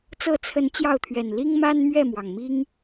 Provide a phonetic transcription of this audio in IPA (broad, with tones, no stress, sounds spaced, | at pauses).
t͡s ɤ˥˨ t͡sʰ ə˨˦ n t͡ɕ j ɑ˥˨ ʊ̯ t̪ʰ ɥ ɛ˨˩ n l i˦ ŋ m a˦ n m ɥ ɛ˥˨ m w ɑ˩ ŋ m i˦ ŋ